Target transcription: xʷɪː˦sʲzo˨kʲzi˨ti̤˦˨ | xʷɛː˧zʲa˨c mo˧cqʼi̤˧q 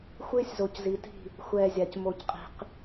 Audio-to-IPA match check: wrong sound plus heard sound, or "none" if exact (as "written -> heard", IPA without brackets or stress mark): kʲ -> c